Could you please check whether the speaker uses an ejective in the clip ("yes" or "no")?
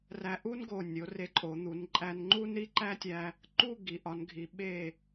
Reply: yes